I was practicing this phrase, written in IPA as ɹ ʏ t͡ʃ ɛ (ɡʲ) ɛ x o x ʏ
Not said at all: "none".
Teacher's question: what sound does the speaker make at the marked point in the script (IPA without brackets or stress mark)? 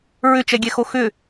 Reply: ɡʲ